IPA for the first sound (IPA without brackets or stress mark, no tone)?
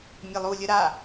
mʲ